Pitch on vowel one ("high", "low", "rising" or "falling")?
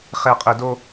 low